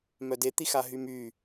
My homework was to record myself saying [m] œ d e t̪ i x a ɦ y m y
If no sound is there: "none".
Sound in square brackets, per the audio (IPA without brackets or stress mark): m